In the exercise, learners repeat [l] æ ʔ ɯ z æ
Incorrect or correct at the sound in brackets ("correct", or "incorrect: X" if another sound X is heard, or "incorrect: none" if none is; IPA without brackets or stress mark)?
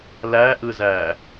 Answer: correct